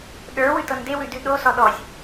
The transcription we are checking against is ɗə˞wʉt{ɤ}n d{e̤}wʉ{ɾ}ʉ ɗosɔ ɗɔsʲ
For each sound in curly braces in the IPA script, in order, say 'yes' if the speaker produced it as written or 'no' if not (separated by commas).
yes, no, no